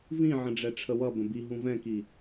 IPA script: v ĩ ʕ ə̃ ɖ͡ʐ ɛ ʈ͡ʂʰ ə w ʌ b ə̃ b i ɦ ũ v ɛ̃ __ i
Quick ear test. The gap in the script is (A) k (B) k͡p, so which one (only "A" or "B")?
A